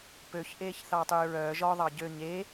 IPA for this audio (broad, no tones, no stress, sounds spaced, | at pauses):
p ø ç ʔ eː ç θ ɑː tˤ yː ɹ œː ʒ ɔ ðˤ ɑ ɟ ø ɲ eː